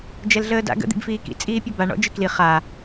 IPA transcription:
d͡ʒ ɛ l ɮ əː d a̰ ɡ ə̰ d̪ ḭ b f iː k ḭ t͡sʼ iː pʲ ɔ b a ɳ ɔ̰ d͡ʒ ɨ k l i χ a

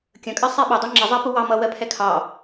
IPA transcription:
kʲ ə̃ kʼ ɜ sˤ ɛ ɓ ʊ dˤ ɜ ŋ͡ǁ ɪ zˤ ɛ p u w ɑ m ʌ w ɜ pʰ ɛ kʰ ɑ

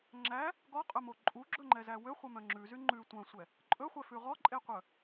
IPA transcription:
ŋ͡ǁ æ | ɡ ɔ qʼ œ m o ǃʼ u ɡ͡ǁ ɵ ŋ͡ǃ ɛ z æ w ø χʷ œ m œ̃ ŋ͡ǁ ʉ z y ŋ͡ǃ ʉ tʷ œ̃ sʷ ɛ | ǃʼ ɵ χʷ ɛ f ʉ ʁ ɔ ǃʼ e qʷ œ

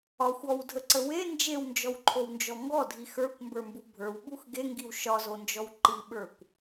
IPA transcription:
ɒ xʷ ɔ w dʱ ə ǀ ə w e n d͡ʒ e w n d͡ʒ ɔ w ǃʰ o w n d͡ʒ ɔ ŋ ɡ ɔ dʱ i x ə˞ kʷ m b ə˞ m b u bʱ ə˞ w ɓ u x ɡ e ŋ ɡ i w ʃ ɒ z o n d͡ʒ ɔ w ǃ i ɓ ə˞ kʷ

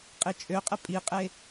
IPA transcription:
qʼ i t͡ʃʼ ø qʼ ɛ pʼ i qʼ e

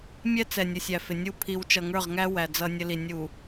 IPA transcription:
mʲ ɛ˦ t͡s ɛ˨ nʲ ʊ˨ sʲ æ˨ f ɪ˨ nʲ u˦˨ pʰ i˨ w t͡ʃ ʌ˨ ŋ ə˞˦˨ ʁ ŋ æ˦ w æ˨ d͡z ʌ˦ nʲ ə˦ l i˨ nʲ u˨

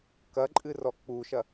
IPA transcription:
k ɐ ǃʼ ɨ r ɔ k͡p u ʃ ɐ

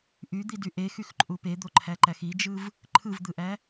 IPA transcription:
ʔ y d̪ i d y ʔ e x y x ǃʼ u p e d̪ o ǃʰ æ ǃ æ x i d͡ʒ ɯ v | ǃʰ ɯ v d̪ ɯ ʔ æ

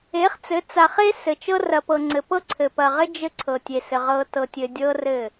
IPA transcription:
e˨˦ χ t͡s ɘ˨˦ t͡s a˨ χ e˦ s ɘ˨ t͡ʃ ɤ˦ r ɐ˨ p ɤ˨ ŋ͡ǀ ɘ˨ p ɤ˦ ǀʰ ɘ˨ p ɐ˨ ʁ ɘ˦ d͡ʒ ɘ˦ ǀʰ ɤ˨ tʲ e˨ s ɘ˨ ʁ ɤ˨ t ɤ˨ tʲ ɘ˨ dʲ ɤ˦ r ɘ˦˨

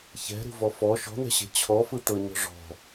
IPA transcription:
ç ɛ̤ ɾ ṳ v ɔ f ɔ ʃ ɔ̤ n̪ ɛ̤ ɕ e̤ t͡ɕʰ ɔ f ɯ t̪ ɤ ɲ ɔ̤ ʐ ɔ̤

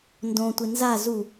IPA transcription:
n d õ tʷ ɪ n z a z u

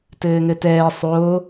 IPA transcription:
t ɘː ŋ ɘ t ɛː sˤ o

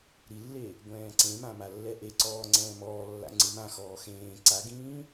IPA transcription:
ɾ i lː e | ɡʷ ɛ̃ː ǀ ẽ m ã m a lː ɛ ʔ e ǀ ɔː ŋ͡ǀ ɛ̃ː m ɔː lː a̰ ŋ͡ǀ ɯ m ã x ɔː x ẽː ǀ a ɡ ĩː

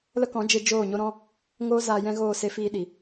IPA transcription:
l ə˦ k ɔ̃˨˦ d͡ʒ e˧ d͡ʒ oː˦˨ ɲ o˦ ɾ ɔ̃˦ | ŋ oː˦ z aː˧ j ɛ̃˦ ɣ oː˦˨ s e˦ f iː˧ ɗ i˨

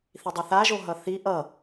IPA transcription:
θ i dˤ ɯ θ a ʒ o ɦ ʌ θ i ʔ ʌ

